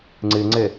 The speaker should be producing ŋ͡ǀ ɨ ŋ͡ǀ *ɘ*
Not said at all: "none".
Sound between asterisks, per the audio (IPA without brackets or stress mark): ɘ